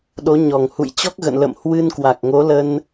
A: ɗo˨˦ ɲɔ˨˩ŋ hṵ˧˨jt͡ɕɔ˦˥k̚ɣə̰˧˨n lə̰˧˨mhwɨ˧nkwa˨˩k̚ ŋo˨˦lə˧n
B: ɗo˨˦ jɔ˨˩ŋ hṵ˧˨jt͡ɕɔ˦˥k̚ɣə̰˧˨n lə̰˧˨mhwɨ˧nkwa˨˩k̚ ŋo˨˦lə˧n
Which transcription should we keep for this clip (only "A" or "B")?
A